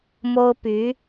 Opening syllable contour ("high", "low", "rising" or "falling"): high